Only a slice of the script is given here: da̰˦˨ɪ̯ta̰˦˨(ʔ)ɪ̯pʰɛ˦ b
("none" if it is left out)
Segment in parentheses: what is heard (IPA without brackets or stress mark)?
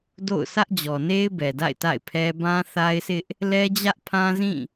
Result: none